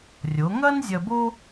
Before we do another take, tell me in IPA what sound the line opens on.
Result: rʲ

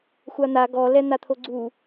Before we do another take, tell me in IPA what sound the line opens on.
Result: xʷ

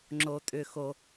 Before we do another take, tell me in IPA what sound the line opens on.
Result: ŋ͡ǁ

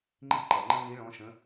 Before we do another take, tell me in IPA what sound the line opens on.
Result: ŋ͡ǃ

